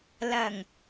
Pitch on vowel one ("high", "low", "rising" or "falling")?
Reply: low